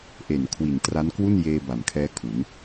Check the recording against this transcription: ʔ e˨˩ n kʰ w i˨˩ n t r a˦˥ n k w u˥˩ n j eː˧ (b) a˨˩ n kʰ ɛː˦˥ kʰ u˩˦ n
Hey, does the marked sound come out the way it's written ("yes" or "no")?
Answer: yes